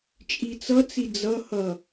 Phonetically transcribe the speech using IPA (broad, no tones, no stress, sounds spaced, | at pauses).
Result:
t͡ʃʼ i t͡s ʌ t͡s i d͡z ʌ h ʌ